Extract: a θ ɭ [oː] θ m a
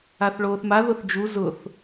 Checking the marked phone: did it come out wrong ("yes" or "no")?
no